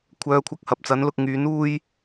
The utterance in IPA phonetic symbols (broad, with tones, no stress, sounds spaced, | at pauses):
kʷʰ œː˧ kʷʰ ɐ˧ k̚ h ɐ˨ p̚ t͡s ɐ˨˥ n l ʊ˧ k̚ ŋ yː˨˥ n uː˥ j